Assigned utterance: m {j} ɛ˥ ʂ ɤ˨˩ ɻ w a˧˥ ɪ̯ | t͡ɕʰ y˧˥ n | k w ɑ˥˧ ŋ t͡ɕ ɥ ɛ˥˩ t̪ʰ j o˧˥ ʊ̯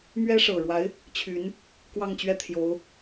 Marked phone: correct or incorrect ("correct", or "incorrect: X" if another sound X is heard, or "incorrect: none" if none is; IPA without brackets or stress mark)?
incorrect: ɥ